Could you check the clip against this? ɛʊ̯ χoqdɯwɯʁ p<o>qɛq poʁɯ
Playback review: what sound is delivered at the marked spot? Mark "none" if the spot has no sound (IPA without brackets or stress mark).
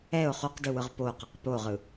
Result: o